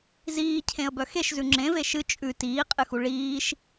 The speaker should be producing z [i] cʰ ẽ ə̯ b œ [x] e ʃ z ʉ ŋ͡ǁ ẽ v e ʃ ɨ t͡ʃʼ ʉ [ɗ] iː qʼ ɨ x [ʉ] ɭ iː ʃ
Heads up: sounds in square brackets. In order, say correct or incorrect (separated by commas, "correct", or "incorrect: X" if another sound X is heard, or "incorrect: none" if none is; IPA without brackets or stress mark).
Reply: incorrect: iː, correct, incorrect: t, incorrect: u